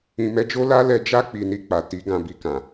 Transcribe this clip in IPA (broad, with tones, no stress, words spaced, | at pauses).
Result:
ĩ˨mɛ˧d͡ʒo˦ la˦lɛ˧d͡ʒa˦ k͡pi˧ni˧k͡pa˨ ti˨˦ ɡã˧bi˧kã˨